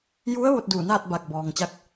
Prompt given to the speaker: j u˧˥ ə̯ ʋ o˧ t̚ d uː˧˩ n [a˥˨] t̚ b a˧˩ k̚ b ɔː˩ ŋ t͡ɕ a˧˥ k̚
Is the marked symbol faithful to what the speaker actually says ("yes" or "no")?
no